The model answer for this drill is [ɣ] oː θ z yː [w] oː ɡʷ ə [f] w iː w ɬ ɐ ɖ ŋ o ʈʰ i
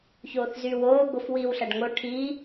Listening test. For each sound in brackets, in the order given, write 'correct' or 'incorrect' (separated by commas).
incorrect, correct, correct